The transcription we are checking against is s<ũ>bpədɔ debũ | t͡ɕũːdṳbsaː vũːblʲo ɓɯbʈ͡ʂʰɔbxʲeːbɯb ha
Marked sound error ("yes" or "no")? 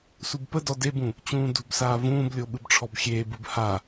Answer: yes